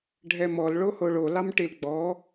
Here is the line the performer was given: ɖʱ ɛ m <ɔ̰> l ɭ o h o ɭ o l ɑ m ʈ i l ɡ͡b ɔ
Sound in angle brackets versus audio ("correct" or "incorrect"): incorrect